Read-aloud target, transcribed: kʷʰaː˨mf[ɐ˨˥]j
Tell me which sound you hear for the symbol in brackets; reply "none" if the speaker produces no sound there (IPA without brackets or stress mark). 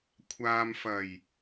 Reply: ɐ˨˩